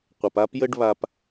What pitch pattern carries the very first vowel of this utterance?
low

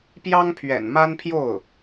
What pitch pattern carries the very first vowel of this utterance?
high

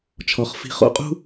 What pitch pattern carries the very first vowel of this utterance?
low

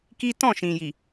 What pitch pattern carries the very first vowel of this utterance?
high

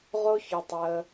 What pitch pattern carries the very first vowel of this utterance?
high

